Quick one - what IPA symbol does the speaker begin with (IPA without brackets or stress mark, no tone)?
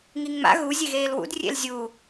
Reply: ŋ